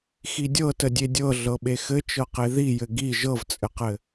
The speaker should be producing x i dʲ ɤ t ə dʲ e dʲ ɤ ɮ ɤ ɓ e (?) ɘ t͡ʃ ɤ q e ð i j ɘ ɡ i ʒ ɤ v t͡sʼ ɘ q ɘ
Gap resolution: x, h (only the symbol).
x